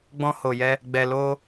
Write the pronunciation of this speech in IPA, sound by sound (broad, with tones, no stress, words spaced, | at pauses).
ɡ͡bɔ̃˧ho˨jɛ˧ | ɡ͡bɛ˨lo˧